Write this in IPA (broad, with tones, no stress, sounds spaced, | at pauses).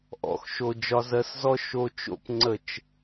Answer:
ʔ ɔ̰˧ x ʃ o˨ d͡ʒ ɒ˧ z ɜ˧ s z ɔ˦ ʃ o˧ t͡ʃ o̰˦˨ p ŋ͡ǀ ə˦˨ t͡ʃ